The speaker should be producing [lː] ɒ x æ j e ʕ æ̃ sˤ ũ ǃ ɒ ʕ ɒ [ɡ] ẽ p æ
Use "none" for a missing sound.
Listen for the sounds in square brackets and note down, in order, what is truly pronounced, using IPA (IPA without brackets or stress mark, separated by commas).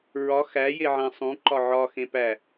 ɹ, x